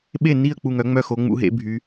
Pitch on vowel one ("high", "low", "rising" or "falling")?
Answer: falling